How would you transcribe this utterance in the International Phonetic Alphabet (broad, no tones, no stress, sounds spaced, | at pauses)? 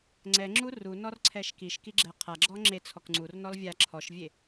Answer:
ŋ͡ǀ ɛ ŋ͡ǁ u r u n ɔ r ǀʰ ɛ ʃ k i ʃ k i ɡ͡ǁ ɛ qʰ a ɡ͡ǁ ɔ ŋ͡ǁ e t͡sʰ ɔ k ŋ͡ǀ u r n ɔ l vʲ a ǁʰ ɔ ʃ vʲ e